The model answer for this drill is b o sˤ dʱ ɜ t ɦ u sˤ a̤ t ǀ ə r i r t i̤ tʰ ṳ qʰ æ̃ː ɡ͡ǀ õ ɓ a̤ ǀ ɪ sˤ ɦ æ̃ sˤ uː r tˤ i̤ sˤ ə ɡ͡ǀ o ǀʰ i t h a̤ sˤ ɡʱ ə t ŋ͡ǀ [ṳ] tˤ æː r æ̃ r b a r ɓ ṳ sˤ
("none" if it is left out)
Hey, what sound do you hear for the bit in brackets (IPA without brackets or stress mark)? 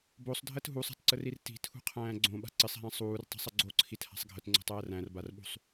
o̤